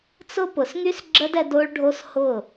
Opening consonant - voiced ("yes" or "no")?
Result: no